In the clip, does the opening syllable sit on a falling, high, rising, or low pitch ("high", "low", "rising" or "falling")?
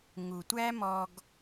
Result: low